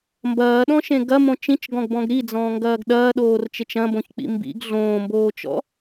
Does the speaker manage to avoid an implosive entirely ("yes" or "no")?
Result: no